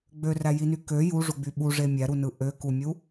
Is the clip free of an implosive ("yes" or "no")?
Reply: no